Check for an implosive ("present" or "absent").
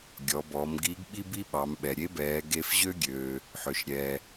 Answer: present